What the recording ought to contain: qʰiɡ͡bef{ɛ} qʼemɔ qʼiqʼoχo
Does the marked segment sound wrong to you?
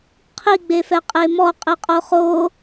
no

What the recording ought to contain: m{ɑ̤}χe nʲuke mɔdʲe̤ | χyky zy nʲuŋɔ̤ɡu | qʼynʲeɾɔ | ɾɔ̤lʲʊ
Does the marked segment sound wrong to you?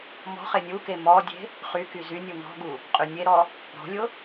yes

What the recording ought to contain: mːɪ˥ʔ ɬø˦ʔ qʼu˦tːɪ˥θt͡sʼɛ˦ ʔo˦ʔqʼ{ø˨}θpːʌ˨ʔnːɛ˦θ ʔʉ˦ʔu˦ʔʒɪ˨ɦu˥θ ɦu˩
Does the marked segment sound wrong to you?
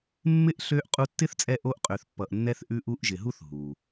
no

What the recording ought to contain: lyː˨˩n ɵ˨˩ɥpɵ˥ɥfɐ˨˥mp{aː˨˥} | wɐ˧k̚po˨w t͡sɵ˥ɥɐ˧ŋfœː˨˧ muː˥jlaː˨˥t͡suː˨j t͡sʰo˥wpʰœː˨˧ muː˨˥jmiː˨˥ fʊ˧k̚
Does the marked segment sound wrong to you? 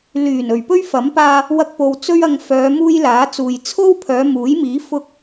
yes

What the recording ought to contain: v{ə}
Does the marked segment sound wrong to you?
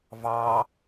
yes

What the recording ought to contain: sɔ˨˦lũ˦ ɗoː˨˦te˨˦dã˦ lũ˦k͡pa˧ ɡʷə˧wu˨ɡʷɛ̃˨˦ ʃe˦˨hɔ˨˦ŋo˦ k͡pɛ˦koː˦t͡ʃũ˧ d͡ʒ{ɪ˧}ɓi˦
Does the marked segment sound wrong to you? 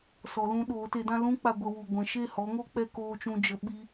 yes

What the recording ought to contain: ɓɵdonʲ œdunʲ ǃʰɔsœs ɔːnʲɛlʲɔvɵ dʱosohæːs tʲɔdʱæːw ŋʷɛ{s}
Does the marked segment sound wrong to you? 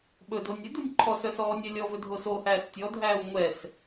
no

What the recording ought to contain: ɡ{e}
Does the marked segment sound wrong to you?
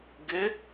no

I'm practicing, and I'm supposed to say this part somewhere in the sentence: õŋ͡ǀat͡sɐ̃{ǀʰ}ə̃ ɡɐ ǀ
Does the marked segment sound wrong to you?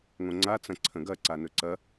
no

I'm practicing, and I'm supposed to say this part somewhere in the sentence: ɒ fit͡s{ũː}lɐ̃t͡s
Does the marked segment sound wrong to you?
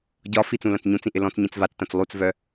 yes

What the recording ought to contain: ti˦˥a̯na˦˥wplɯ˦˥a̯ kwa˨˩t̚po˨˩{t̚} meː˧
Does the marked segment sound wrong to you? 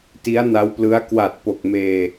yes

